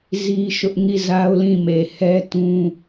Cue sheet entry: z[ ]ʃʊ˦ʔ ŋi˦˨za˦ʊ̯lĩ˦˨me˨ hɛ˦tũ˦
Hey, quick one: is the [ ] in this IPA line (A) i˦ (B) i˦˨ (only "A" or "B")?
A